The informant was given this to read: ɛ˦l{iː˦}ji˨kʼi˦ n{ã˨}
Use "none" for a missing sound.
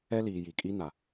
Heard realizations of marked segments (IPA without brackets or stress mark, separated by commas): iː˨, a˨